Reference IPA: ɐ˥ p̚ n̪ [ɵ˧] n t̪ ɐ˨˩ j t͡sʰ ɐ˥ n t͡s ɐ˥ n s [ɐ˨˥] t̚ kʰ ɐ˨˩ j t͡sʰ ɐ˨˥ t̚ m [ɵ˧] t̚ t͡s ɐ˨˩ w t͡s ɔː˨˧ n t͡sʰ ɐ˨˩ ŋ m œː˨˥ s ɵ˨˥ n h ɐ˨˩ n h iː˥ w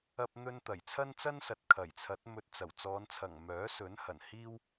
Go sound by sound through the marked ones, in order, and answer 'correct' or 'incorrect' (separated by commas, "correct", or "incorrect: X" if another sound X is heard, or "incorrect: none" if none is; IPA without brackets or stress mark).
incorrect: ɵ˥, incorrect: ɐ˨, correct